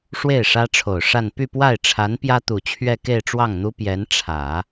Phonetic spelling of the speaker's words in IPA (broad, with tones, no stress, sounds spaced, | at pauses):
ʂ w e˥˩ ɪ̯ ʂ ä˥ ʈ͡ʂʰ o˨˩ ʊ̯ ʂ a˥˧ n p y˥˧ p w a˥˩ ɪ̯ ʈ͡ʂʰ a˧˥ n p j ä˥ t̪ u˨˩ t͡ɕʰ ɥ ɛ˥˧ k e˥˧ ɪ̯ ʈ͡ʂ w ɑ˥˩ ŋ n̪ u˥ p j ɛ˧˥ n ʈ͡ʂʰ ä˨˩˦